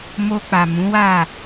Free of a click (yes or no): yes